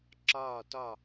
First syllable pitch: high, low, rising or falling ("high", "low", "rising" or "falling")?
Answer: falling